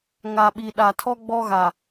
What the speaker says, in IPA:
ŋ a˨ ɓ i˨ ɗ a˨ tʰ ɔ˦ ɡ͡b ɔ˦ ɣ a˨

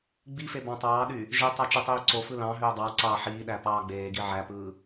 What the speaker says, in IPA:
ɡ͡b i f e b ɑ̃ tˤ ɑː ɗ y | ʒ i tˤ ɑ t͡ʃ e tˤ iː ǀ o f ɯ l ɑ̃ ɦ øː dˤ ɑ ǀ ɑː ħ iː ɗ æ p ɑː ɡ͡b eː ɡ i ʕ æ p ɯː

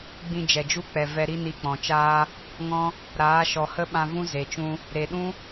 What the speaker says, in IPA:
ɡ͡b ĩ˧ d͡ʒ ɛ˨ d͡ʒ u˦ k͡p ɛ˨ v ɛ˧ ɾ i˦ n i˧ k͡p ɔ̃˨ t͡ʃ aː˦ | ŋ ɔ̃˦ | ɾ aː˨˦ ʃ ɔ˨ h ə˦ ɓ ã˧ v ũ˦ z e˨ t͡ʃ ũ˧ | ɾ e˨ ɗ ũ˦

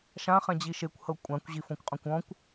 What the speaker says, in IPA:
ʃ ã χ ɛ̃ d͡ʑ i ʃ e kʷ h ɤ kʷʼ ã kʷ ʑ i f õ kʷ qʼ ɔ̃ kʷ ɔ̃ kʷ

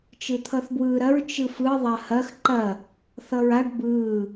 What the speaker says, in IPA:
t͡ʃ ɯ t̪ʰ ʌ θ b w ɯː ɾ ɐ ɹ t͡ʃ ɯ f ɯ ðˤ ɐ h ɐ x ǃ ɐ | θ ʌ ɹ a ɖ b ɯː

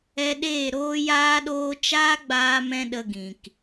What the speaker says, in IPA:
ɛ˧ ɗ eː˦˨ ɾ oː˦ j aː˦ ɗ oː˦ t͡ʃ aː˦ ɡ͡b aː˧ m ɛ̃˧ ɗ ə˧ ɡ ĩ˨ k

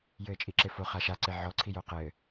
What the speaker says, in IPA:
j ɘː t͡ʃʼ i ǁ e f o χ a ʃ a ǀ e ʕ ɔ ǀʰ i j o q ɘː

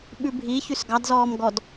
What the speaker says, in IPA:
ɓ ʉ bʱ i ç ʉ s ɡ ɑ d z ɔː m ɡ ɔ d

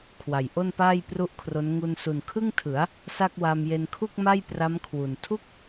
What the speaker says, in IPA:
kʰ w a˨˩ j ʔ o˥˩ n p aː˥˩ j p r u˥˩ ʔ kʰ r o˦˥ n ŋ u˧ n s u˨˩ n kʰ ɯ˥˩ ŋ tʰ ɯ˩˦ a̯ | s a˥˩ k̚ w a˧ m j e˧ n kʰ u˥˩ k̚ m a˥˩ j p r a˦˥ m kʰ w u˨˩ n tʰ u˥˩ k̚

